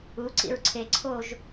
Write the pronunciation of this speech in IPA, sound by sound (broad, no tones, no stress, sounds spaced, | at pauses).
u ǀ ḭ ɹ ǀʰ e ǀʰ o ʒ